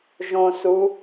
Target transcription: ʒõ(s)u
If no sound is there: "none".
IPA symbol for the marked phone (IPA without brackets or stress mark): s